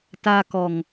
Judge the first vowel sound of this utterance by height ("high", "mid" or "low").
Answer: low